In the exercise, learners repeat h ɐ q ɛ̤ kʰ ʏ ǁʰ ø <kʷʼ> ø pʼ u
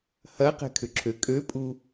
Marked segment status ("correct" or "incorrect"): incorrect